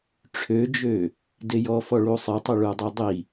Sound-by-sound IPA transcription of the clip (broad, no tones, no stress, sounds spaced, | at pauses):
ʈ͡ʂʰ ø d͡ʒ ø | d e j ɔ f ɔ ɭ u sˤ e tˤ ø ɭ u dˤ i dˤ i